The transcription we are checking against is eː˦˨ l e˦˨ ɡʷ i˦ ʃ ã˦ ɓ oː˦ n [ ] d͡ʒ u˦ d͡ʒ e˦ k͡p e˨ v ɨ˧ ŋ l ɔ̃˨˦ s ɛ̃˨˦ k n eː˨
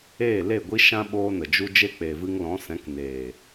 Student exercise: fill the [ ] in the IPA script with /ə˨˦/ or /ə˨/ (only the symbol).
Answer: ə˨